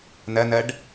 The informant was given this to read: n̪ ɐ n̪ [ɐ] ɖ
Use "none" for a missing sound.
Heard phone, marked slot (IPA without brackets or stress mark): ɐ